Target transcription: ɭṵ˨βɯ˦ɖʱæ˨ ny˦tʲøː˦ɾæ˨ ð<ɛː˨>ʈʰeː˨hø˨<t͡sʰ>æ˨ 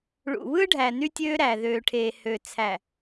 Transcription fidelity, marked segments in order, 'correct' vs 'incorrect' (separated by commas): incorrect, correct